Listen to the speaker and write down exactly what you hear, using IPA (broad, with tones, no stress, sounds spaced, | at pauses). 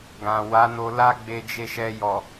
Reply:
ɡ ã˨ w a˨˦ n o˧ l a˦ ɡ͡b e˧ d͡ʒ e˧ ʃ ɛ˧ j ɔ˨